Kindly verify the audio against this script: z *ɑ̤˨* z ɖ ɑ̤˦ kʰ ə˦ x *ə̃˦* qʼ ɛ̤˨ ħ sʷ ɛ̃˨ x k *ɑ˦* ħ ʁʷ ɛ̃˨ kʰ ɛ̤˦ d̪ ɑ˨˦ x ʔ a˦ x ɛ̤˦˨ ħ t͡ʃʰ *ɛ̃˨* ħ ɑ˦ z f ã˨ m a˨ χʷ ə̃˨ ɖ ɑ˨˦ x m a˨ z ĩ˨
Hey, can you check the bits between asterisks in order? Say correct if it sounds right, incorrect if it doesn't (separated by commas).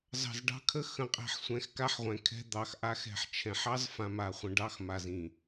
correct, incorrect, incorrect, correct